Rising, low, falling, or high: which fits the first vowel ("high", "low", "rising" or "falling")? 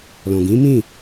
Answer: low